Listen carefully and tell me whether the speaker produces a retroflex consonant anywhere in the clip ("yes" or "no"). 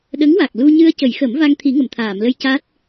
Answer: no